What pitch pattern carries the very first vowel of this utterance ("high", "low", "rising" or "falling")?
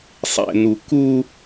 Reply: low